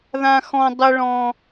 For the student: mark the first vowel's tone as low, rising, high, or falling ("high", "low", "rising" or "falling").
high